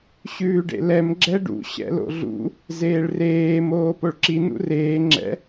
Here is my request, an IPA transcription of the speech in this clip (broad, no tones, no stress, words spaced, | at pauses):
ɕʉːɖḛlɛm ɡ͡ǁɛɖṵ ɕɛ̰lo̰ɮṵ | zeːɭreː moːpoɭǁi nṵreː ŋ͡ǁɛ̰